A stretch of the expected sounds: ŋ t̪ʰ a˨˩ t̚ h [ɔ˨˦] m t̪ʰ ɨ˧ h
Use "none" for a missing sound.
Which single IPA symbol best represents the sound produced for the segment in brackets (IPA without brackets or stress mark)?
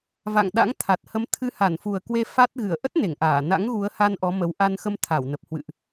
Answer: ə˨˦